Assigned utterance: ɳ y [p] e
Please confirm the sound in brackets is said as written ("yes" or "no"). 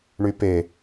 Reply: yes